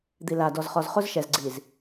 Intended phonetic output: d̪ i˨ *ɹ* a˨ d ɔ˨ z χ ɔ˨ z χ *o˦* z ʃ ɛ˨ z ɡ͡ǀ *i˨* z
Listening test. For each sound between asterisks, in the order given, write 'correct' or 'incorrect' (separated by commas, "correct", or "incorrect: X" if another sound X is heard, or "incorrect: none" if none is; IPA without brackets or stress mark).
incorrect: l, correct, correct